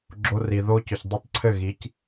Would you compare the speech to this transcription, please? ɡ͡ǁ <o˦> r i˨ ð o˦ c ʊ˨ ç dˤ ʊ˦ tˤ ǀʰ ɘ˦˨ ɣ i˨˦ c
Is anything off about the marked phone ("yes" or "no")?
yes